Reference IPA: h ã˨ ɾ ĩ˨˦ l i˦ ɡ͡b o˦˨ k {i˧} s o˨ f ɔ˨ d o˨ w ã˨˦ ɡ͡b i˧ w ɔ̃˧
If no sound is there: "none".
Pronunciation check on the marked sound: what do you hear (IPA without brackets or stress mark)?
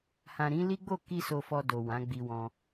i˧